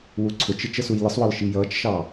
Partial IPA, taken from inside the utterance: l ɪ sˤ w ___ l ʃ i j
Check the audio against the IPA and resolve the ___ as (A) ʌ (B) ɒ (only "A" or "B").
B